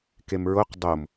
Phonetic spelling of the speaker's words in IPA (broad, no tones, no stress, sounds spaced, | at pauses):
k e m ɹ o q dˤ o m